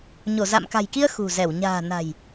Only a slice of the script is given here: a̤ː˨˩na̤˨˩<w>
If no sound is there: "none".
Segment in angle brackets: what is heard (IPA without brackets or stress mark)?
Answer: j